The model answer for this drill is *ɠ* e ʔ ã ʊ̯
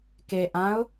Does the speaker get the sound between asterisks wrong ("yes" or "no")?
yes